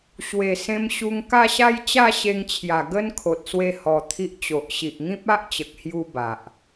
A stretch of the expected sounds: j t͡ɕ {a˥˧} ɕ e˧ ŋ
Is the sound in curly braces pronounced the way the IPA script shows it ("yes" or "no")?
yes